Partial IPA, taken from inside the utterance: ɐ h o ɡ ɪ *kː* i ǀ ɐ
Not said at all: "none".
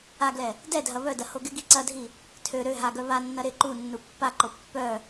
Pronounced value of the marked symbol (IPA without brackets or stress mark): ɡ